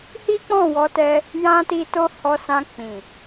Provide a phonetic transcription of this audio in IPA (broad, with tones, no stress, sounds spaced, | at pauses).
h i˦ k͡p ɔ̃˦˨ w ɔ˨˦ t ɛ˧ | j ã˧ t i˧ t o˧ h ɔ˧ s ã˧ k͡p ĩ˨